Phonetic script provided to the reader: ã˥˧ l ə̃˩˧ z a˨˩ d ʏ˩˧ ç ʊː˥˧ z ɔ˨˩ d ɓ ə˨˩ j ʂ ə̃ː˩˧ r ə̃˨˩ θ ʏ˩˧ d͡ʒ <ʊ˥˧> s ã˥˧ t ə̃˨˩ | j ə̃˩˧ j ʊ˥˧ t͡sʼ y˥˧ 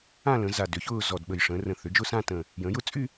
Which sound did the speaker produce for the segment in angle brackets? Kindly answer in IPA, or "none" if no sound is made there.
ʊ˥˧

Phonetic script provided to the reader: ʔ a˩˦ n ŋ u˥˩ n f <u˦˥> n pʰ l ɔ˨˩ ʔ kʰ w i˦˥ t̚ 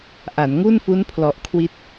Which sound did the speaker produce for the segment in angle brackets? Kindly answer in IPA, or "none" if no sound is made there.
u˦˥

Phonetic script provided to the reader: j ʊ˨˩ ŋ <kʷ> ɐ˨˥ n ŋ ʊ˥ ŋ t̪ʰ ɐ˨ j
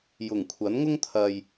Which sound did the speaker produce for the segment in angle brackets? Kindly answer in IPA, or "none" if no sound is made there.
kʷʰ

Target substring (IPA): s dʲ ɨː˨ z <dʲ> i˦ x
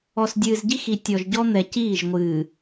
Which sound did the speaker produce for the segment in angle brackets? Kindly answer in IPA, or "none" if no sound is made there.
ɟ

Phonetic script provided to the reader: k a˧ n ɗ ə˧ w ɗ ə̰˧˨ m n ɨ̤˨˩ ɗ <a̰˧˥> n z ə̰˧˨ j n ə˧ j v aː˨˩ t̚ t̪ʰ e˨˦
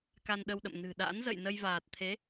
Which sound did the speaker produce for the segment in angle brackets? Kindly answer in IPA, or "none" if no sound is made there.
a̰˧˥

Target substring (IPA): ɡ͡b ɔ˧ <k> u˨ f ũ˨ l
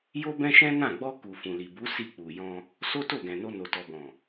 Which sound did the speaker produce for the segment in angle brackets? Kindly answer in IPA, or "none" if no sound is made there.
k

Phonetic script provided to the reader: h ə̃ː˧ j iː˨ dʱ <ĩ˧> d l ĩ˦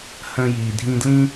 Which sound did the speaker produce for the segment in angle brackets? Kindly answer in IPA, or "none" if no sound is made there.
ĩ˧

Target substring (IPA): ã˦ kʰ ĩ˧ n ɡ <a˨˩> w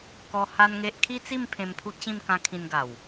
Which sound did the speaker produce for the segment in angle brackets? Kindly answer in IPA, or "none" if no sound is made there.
a˨˩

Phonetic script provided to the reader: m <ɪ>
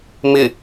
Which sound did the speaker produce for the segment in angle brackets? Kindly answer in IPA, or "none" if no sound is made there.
ɪ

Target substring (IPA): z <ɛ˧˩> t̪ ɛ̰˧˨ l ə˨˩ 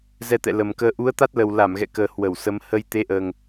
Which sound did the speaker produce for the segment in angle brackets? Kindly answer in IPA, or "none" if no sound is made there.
ɛ˧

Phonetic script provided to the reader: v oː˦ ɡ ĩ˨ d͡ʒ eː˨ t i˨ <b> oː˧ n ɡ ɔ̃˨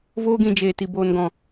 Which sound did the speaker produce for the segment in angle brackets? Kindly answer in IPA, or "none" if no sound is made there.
b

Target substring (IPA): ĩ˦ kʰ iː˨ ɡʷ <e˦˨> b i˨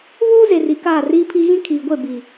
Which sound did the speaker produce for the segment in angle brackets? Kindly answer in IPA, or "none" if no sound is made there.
e˦˨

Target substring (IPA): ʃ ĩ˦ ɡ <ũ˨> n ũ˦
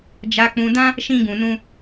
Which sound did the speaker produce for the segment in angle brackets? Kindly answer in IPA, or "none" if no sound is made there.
ũ˧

